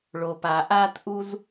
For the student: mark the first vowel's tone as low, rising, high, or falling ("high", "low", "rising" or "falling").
low